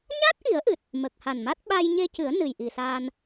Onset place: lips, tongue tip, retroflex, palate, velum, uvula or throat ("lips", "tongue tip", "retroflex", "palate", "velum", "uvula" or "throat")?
palate